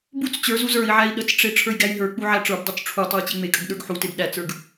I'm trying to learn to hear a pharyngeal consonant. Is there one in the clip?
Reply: yes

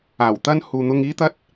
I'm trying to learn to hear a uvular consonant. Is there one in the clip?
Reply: no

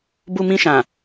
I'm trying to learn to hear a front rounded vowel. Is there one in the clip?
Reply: no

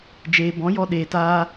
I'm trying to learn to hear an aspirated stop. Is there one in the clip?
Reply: no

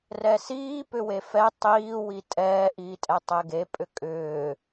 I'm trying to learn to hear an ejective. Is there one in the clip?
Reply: yes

